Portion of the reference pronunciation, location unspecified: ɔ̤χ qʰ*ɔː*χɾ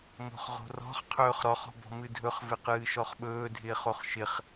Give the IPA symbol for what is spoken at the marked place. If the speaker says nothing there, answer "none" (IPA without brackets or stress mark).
ɵː